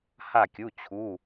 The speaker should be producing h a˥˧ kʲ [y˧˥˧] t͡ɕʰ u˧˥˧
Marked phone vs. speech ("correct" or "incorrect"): incorrect